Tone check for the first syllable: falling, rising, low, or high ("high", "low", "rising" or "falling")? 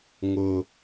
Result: high